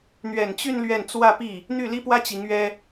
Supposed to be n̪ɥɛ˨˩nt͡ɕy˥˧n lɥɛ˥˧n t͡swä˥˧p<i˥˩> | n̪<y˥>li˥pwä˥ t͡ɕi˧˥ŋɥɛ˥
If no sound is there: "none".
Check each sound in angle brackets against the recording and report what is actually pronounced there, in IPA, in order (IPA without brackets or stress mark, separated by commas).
i˥˩, y˥˩